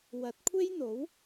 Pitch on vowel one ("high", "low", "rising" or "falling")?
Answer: rising